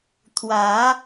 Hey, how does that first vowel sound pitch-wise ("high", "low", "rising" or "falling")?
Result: rising